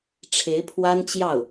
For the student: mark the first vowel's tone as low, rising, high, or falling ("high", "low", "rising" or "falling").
rising